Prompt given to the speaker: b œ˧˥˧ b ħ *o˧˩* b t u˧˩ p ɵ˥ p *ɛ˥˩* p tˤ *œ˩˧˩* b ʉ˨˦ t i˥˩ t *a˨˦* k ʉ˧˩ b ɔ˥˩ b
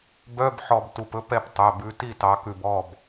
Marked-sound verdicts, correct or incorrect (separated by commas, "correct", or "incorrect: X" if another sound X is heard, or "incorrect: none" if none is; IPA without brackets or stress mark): incorrect: ɔ˧˩, correct, correct, incorrect: ɑ˨˦